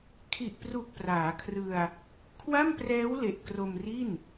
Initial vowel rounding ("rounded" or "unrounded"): unrounded